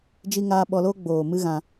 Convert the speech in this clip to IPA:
d͡ʒ i˦ ŋ aː˦ ɓ ɔ˧ l oː˦ ɡ͡b oː˨ m ɨ˦ ɣ ã˧

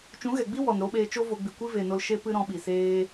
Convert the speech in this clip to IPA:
t͡ʃ ũ˨˦ ɣ ɛ˨ ɡ͡b i˦ w ɔ˨ n ɾ o˧ ɓ eː˧ t͡ʃ o˦ v o˧ ɡ͡b i˨ kʷ i˦ v e˨ n o˧ l ʃ e˧ p ɨ˧ ɾ ɔ̃˧ ɓ i˨ s eː˧

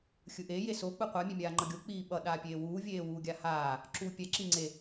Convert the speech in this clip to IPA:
xʲ ɯ ʔ e j e s o k͡p ɯ qʷ a mʲ e mʲ aː ŋ͡ǃ ʌ ɡʲ o k͡p iː ɓ ʌ ɗ aː pʲ eː w uː vʲ eː w uː ɡʲ a h aː | ǁ uː pʲ ɛ ǁ i ŋ͡ǀ e

